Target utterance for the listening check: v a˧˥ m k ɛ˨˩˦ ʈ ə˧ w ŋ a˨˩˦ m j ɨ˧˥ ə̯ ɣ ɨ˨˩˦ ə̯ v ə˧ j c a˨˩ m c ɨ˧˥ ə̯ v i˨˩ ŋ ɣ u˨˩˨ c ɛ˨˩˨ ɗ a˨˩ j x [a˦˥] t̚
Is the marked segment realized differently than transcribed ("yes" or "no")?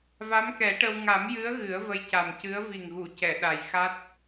no